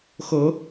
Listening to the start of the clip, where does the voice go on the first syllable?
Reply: rising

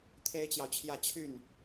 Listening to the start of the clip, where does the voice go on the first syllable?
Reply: high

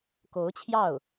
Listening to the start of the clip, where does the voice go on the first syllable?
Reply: rising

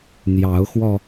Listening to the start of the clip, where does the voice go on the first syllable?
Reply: rising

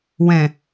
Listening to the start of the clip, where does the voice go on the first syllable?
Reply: low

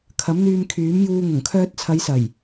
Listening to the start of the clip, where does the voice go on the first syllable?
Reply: rising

